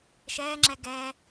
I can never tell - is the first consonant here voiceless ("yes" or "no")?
yes